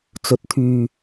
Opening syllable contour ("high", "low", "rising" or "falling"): rising